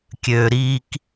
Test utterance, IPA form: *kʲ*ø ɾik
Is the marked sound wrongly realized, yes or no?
no